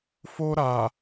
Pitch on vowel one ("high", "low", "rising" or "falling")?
high